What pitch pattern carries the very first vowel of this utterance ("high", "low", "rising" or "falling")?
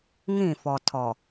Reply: falling